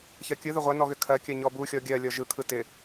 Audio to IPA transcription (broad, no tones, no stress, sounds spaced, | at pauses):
ç ɜ kʲ ɯ ð ʏ ʁʷ ɛ n ɔ ɣ ʏ kʰ ɜ kʲ ɜ ɲ ɔ b u xʲ ɔ ɡʲ ɜ lʲ ɔ ʒ ɯ kʰ ɯ t ɪ